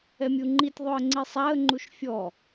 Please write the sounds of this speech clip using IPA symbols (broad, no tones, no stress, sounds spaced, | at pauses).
ɛ mʲ u ŋ͡ǃ i tʲ ðˤ o ə̯ ŋ͡ǀ i sˤ a ə̯ ŋ͡ǃ u ʃ fʲ ɔ